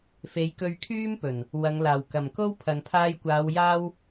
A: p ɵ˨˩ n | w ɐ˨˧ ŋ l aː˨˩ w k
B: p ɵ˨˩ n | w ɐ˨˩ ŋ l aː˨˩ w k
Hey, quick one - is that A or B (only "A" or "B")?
A